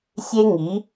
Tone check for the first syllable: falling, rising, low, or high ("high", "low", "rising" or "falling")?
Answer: high